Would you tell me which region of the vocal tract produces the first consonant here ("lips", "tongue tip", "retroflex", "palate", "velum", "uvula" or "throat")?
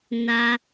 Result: tongue tip